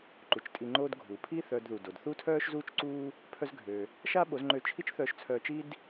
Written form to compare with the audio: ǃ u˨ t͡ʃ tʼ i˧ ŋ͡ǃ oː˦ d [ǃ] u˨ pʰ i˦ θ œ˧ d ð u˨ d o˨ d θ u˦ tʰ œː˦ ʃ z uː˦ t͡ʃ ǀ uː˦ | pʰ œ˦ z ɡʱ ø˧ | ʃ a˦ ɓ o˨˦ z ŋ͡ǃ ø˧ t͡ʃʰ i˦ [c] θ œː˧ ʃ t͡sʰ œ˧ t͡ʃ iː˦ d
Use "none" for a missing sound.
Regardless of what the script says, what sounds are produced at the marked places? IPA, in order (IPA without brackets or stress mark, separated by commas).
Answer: ɡʱ, t͡ʃ